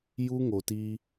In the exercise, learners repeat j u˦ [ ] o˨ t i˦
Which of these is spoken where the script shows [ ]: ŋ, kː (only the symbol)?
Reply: ŋ